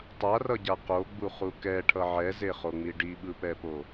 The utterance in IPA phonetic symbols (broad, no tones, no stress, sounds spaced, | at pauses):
tˤ a r ʌ ɟ a q o ɡ͡b u χ u k ɛ ʈʰ ʌ ʕ ɛ z e χ o ŋ͡m i ɖ i ɓ ɯ p ɛ p o